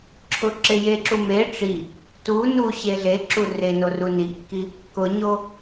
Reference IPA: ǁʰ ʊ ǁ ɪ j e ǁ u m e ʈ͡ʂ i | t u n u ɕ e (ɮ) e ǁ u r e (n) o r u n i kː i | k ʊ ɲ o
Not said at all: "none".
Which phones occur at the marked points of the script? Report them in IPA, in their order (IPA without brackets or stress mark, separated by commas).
ɮ, n